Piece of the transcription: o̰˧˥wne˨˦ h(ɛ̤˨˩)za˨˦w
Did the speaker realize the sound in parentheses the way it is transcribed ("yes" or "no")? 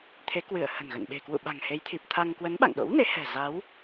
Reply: yes